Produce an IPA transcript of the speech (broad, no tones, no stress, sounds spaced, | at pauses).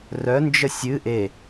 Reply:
r œ n d͡ʒ ə sʲ ɨ ʔ e